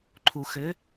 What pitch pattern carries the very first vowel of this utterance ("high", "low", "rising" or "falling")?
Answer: low